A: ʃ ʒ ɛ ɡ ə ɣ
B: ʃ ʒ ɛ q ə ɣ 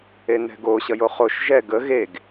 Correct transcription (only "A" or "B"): A